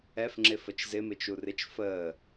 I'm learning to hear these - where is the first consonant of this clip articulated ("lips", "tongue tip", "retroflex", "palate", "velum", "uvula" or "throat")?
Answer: lips